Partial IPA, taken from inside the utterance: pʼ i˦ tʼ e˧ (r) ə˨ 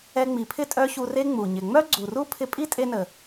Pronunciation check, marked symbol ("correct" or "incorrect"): incorrect